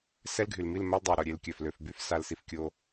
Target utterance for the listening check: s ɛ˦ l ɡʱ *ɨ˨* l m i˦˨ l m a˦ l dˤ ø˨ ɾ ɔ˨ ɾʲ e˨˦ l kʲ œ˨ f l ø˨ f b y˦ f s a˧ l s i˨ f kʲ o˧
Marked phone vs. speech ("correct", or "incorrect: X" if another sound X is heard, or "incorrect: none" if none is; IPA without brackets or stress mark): incorrect: y˨